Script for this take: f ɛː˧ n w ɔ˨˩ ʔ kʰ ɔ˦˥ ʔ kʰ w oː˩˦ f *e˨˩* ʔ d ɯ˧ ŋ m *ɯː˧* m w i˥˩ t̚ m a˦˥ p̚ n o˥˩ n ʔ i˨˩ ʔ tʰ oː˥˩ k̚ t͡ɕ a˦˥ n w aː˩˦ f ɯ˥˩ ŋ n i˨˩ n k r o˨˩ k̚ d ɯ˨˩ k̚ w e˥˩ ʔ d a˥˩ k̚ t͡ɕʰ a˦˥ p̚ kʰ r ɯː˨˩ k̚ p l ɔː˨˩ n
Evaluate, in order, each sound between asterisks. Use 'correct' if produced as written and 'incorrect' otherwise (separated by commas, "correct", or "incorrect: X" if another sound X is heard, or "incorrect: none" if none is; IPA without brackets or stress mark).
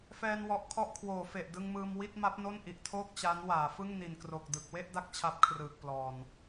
correct, correct